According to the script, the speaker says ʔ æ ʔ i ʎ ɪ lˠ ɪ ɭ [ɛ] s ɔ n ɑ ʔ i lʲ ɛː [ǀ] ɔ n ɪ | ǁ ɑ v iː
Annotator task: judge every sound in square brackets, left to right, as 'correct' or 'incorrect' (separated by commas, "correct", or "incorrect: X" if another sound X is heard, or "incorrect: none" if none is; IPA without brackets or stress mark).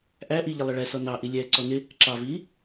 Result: correct, correct